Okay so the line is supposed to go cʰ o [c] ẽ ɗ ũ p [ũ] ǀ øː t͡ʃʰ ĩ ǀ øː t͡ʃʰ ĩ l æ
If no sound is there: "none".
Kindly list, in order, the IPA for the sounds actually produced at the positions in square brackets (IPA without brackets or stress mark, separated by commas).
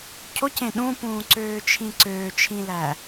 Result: c, ũː